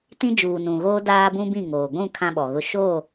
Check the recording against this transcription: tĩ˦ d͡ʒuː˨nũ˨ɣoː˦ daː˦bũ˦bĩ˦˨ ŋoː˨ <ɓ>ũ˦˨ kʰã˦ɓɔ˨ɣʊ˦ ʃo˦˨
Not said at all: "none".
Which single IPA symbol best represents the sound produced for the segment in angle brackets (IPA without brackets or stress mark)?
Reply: ɡʷ